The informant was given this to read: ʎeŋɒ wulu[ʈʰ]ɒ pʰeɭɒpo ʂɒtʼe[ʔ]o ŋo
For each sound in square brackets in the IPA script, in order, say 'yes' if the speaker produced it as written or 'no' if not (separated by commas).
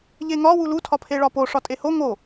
no, no